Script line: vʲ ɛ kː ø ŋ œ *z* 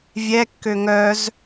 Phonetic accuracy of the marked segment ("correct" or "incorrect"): correct